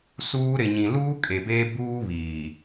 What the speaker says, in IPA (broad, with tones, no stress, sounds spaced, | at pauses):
s uː˦ ɾ ɪ˨ ɲ ĩ˨ l uː˦ kʼ e˨ b eː˦ b uː˦ β iː˨